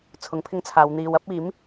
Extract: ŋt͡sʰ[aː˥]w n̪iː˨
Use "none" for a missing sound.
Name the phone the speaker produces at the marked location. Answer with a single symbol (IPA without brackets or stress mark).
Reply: aː˨˧